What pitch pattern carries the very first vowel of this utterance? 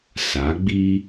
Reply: rising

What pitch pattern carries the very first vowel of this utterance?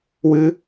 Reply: high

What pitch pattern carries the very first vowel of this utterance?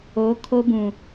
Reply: rising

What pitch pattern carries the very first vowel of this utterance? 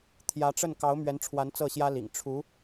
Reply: rising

